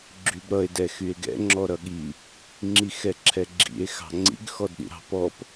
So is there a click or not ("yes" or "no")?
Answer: yes